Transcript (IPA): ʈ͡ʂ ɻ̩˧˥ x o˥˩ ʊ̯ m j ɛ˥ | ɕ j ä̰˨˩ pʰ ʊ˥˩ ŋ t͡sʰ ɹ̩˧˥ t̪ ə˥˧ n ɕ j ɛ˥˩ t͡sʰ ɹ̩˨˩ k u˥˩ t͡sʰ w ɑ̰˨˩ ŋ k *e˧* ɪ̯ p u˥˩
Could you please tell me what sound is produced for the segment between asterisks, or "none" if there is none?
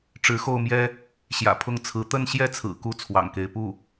e˧˥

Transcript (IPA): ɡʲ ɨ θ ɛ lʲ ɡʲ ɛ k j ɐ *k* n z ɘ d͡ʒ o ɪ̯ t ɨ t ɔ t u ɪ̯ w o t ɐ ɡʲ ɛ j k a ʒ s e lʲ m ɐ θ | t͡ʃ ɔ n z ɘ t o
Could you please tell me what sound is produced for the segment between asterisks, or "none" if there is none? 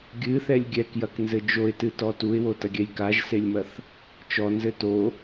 k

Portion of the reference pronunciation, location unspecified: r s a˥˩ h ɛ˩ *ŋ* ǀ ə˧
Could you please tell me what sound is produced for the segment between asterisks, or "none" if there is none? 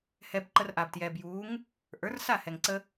ŋ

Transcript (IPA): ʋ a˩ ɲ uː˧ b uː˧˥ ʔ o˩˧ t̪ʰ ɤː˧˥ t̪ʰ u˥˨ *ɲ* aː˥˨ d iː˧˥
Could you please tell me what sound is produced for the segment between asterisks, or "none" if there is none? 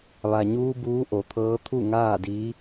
ŋ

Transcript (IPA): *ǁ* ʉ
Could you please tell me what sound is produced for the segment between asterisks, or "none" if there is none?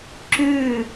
ǁ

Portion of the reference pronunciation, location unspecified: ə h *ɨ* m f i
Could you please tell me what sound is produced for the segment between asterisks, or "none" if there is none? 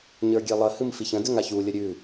ɨ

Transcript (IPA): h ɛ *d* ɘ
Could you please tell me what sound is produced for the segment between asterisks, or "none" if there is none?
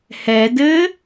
d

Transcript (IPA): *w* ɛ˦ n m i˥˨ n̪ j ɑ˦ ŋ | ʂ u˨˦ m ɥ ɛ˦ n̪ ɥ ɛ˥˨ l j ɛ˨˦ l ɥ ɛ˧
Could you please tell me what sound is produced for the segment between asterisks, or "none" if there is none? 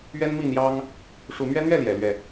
ɥ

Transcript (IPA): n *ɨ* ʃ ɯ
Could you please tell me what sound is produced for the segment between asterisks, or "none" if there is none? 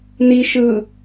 i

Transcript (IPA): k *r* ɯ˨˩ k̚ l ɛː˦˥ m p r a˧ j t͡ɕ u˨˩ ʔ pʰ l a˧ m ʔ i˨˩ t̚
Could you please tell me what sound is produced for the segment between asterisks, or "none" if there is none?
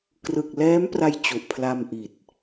r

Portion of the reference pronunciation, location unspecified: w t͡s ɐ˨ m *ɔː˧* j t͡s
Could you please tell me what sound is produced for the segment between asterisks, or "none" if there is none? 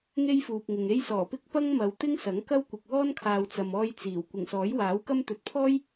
ɔː˧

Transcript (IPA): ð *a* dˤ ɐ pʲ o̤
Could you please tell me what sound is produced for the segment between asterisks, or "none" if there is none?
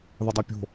ɐ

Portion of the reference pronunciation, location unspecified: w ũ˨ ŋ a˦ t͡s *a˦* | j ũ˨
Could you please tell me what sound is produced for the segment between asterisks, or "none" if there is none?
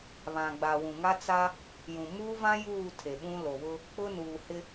a˦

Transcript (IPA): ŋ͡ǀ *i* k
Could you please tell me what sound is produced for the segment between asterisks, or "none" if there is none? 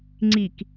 i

